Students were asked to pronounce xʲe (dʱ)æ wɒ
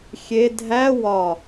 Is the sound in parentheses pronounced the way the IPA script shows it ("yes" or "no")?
yes